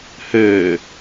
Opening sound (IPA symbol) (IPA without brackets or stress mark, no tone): h